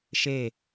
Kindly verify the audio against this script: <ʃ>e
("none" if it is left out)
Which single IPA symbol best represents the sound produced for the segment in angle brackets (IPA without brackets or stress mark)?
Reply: ʃ